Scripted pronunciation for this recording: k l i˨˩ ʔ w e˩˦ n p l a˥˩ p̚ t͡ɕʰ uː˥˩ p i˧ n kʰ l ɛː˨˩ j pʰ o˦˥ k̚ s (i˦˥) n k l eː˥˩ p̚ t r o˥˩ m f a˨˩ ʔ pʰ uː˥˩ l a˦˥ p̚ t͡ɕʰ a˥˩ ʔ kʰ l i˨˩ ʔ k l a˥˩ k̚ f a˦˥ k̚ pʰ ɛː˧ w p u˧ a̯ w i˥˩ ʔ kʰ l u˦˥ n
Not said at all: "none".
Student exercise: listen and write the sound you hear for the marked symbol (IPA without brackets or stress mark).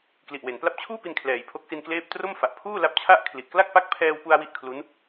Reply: i˧